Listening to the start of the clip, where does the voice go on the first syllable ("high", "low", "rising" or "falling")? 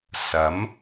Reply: rising